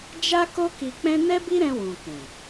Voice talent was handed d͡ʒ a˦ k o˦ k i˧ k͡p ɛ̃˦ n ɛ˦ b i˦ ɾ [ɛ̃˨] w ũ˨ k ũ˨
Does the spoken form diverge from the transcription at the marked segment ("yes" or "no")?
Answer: yes